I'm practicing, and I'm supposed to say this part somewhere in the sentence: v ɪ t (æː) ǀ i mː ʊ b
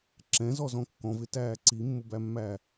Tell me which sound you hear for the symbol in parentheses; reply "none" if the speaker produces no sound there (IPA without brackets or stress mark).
æː